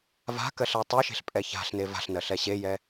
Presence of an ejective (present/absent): present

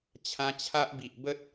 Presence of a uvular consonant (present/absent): absent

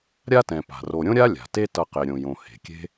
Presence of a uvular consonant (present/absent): present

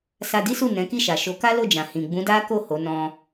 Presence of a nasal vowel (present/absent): present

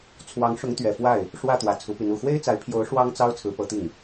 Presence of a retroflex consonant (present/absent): present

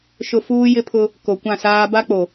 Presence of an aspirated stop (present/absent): present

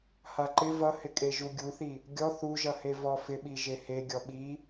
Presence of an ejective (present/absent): present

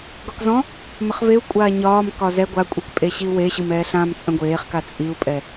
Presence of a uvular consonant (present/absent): present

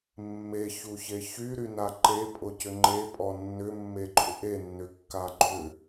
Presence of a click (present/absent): present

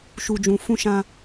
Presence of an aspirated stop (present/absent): absent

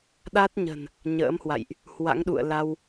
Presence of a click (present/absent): absent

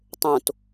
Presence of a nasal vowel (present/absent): present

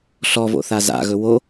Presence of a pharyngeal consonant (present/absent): absent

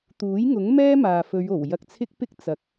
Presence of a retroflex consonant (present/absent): absent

